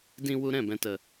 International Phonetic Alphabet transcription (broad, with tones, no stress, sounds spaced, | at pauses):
d ĩ˧ w u˧ ɾ ɛ̃˦˨ b ɛ̃˨ t ə˨